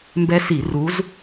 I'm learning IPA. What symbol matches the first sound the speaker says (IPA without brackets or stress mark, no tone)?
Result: m